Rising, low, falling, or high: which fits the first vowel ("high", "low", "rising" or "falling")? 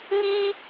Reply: high